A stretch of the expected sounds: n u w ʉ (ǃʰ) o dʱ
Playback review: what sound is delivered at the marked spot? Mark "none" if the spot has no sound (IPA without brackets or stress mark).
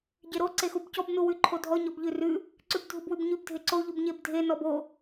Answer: ǃʰ